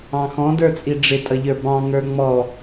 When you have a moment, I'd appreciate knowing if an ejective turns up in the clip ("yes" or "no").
yes